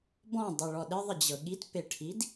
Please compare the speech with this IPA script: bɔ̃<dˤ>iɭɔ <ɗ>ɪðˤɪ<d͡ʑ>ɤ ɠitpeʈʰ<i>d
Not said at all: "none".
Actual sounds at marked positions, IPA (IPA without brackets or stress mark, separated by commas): dˤ, ɗ, d͡ʑ, i